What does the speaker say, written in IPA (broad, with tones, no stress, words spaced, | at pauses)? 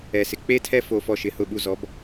ɛ˩sɪ˩ k͡pe˥tʰɛ˥ fo˧fɔ˧ʃɪ˩˥hʊ˧ ɓu˧zɔ˩˥b